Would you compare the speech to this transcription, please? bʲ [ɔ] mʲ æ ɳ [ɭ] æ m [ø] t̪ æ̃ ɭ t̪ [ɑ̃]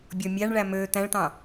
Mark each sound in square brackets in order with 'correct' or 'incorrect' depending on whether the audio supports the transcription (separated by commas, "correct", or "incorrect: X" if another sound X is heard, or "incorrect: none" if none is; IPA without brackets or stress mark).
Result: correct, correct, correct, correct